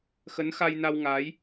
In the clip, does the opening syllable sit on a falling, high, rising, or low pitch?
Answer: rising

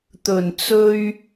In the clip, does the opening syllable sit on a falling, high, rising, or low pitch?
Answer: low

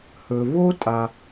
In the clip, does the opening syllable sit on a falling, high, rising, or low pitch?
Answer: low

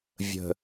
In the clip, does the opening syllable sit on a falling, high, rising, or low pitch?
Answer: low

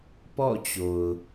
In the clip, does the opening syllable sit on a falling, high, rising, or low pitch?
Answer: falling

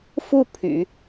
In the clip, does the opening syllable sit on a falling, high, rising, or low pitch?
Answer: falling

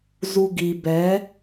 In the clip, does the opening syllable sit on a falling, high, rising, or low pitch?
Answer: low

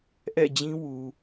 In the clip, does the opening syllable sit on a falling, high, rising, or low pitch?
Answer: falling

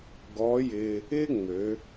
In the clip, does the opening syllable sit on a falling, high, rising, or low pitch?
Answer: rising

